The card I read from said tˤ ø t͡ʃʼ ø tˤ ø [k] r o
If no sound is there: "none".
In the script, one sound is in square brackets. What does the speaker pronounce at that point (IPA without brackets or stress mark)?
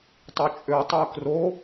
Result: k